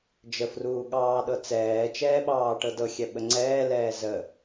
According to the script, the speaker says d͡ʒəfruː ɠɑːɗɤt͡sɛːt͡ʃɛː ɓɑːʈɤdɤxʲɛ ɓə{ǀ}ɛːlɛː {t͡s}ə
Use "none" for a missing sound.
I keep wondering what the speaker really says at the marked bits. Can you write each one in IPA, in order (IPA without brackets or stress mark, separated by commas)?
ŋ͡ǀ, z